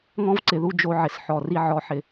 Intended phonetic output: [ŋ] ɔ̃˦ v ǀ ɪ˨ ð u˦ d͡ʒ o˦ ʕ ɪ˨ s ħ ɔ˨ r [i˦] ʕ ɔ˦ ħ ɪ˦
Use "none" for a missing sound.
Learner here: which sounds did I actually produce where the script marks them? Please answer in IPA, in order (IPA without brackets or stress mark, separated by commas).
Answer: ŋ, i˦